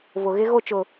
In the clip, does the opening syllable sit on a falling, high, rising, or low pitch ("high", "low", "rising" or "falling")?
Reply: low